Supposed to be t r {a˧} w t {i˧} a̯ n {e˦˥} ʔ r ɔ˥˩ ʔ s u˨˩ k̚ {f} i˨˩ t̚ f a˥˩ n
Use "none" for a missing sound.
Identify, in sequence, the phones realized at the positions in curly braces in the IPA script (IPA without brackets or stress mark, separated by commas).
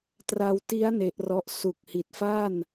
a˧, i˦˥, e˦˥, h